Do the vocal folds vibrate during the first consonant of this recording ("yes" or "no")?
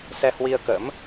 no